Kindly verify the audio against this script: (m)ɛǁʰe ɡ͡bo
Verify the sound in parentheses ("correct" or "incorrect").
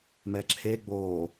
correct